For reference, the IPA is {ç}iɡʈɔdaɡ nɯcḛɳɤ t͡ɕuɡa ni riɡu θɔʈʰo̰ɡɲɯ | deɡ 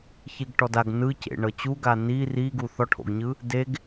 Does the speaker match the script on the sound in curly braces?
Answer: yes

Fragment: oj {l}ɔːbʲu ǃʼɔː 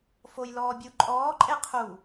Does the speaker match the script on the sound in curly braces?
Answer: yes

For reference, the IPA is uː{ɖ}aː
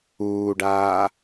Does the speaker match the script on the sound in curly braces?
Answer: yes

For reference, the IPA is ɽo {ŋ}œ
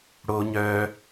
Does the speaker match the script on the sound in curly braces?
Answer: no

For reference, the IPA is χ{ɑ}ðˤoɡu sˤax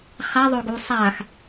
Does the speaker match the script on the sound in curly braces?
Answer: no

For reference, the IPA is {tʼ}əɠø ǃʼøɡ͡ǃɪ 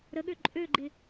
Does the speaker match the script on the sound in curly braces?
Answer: no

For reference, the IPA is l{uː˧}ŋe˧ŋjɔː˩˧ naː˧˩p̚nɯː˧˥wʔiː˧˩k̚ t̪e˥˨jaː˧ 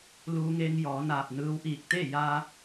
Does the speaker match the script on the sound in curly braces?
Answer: yes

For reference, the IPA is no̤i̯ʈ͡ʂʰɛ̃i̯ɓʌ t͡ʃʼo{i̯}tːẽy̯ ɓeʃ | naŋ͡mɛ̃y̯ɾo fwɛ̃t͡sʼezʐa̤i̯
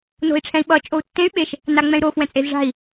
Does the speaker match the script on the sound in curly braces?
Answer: no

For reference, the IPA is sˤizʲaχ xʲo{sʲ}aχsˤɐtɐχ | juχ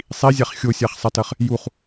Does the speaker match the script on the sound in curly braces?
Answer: yes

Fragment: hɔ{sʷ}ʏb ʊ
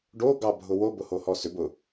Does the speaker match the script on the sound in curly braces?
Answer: no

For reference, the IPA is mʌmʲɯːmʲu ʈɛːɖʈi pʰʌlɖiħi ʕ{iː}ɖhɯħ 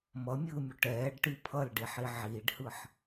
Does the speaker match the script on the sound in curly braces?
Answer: yes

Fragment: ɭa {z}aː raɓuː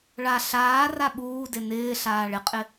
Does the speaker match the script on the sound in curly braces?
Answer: no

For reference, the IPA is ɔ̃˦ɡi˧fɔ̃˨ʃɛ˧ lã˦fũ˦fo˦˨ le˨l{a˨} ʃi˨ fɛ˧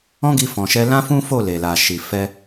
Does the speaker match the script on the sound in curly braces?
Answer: yes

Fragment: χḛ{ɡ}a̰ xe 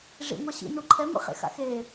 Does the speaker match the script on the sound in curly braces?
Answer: no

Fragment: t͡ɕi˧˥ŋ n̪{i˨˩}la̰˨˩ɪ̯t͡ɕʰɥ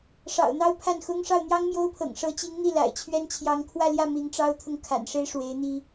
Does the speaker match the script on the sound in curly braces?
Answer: no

